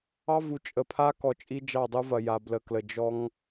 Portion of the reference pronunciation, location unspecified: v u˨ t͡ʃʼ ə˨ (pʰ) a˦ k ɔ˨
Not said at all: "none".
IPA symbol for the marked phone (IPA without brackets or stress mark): pʰ